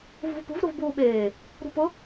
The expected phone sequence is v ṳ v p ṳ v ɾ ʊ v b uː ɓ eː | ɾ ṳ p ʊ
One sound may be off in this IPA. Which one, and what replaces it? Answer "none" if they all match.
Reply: none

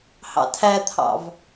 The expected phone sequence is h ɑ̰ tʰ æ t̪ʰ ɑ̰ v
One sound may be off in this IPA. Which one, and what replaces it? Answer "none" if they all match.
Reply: none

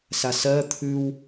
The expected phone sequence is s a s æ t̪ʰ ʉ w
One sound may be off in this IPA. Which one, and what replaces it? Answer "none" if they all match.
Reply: æ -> ɜ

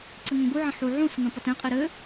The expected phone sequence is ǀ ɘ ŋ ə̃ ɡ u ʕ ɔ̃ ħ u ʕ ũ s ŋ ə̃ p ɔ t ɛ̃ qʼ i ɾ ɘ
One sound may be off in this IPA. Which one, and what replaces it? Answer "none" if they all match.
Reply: ɔ̃ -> ə̃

